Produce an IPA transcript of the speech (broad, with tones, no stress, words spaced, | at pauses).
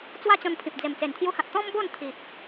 t͡swa˦t͡ɕɔ̃˧npʰĩ˨p̚ d͡ze˨˩mt͡se˨˩nt̪ʰju˧hã˨t̚ t̪ɔ̃˦mbo˥˧nt̪ʰi˨p̚